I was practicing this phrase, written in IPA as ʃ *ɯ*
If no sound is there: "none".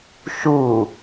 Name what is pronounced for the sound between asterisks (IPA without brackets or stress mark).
u